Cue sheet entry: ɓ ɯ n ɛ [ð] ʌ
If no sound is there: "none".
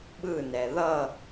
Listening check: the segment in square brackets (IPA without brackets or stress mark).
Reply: ð